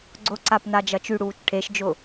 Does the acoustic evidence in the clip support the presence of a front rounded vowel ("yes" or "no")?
yes